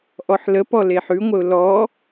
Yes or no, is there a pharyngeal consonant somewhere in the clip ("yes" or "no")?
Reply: yes